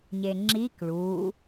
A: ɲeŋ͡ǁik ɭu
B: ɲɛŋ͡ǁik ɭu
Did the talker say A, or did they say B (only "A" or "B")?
A